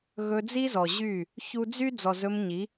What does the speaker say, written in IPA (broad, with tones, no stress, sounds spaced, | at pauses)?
ɣ ɵ˧ d͡z i˦ z ɔ˨ ʑ y˦˨ | ç u˦ d͡z y˦ d͡z ɔ˨ z ɵ˧ m ɲ i˨˦